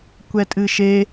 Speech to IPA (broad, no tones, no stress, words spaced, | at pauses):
kʷɛtʼɨʃe